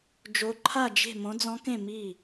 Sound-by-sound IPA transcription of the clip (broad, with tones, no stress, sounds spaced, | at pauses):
d͡ʒ o˧˥ ǃʰ a˥˨ d͡ʒ e̤˥˨ m õ˧˥ d͡z ɔ̃˧˥ k ẽ˥˨ m i˥˨